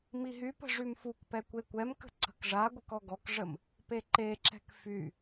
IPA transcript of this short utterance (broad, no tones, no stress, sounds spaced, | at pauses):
m i ɦ y p ə̤ ʐ y m f u k p ɛ kʷ e kʷ ɛ m k ə̤ ǀ ə̤ k ʐ a ɡʷ ə k ɔ ɡ ɔ k ʐ ə m | p e ǃ e ǁ ɛ̤ k f y